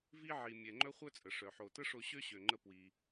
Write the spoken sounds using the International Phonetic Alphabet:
v i˧ ʕ i˩ mʲ ɛ˩ ŋ͡ǃ œ˧ χʷ œ˥ t͡sʼ ə˩ ʂ œ˩ ħ o˩ t ə˥ ʂ o˧ ɕ ø˥ ɕ ø˩ ŋ͡ǃ ə˧ p w i˩

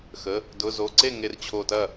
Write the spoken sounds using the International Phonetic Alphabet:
x ə˩˧˩ | d ʊ˩˧˩ z o˩˧˩ ǀ e˥˩ ŋ e˧˩ r t͡ɕʰ o˧˩ t ɐ˥˩

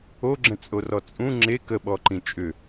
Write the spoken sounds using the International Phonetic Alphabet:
o ɡ͡ǁ ə̃ t͡sʼ o r ɔ t͡sʼ ũ ŋ͡ǁ e k ə ɓ ɔ ǃ ĩ t͡ʃʼ ʏ

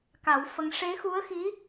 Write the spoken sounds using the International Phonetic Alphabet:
k a˨˩˦ w f ə˧ ŋ ʂ e˧˥ x u˧˥ ə̯ x i˧˥

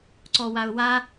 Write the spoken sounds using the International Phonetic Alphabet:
ǀ ɔ w a ʊ̯ w a

